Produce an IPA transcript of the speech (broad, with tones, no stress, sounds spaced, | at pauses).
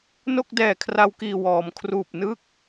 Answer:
n o˥˩ k̚ d ɛː˨˩ kʰ r a˧ w k iː˨˩ w ɔː˩˦ m kʰ r uː˨˩ p̚ n ɯ˥˩ k̚